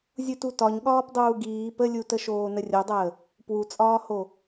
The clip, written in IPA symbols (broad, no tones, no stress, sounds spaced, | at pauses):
zʲ u t u t ɒ ɲ ɠ ɒː p dˤ uː ɡ iː p ə lʲ u t ə ʃ oː n ə rʲ o dˤ əː | p w u t͡sʼ ɒː h o